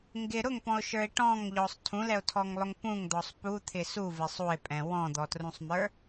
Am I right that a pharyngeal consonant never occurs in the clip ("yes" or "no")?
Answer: yes